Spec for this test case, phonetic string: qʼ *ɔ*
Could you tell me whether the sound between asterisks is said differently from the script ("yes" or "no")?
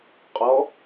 no